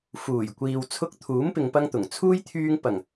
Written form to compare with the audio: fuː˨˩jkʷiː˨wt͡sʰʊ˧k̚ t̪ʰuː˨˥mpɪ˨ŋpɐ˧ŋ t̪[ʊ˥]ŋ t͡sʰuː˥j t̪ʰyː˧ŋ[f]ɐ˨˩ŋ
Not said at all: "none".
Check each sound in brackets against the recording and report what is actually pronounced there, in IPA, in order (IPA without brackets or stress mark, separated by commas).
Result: ʊ˨˩, p